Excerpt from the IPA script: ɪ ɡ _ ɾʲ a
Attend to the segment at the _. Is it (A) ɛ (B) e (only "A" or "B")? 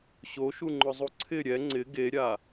B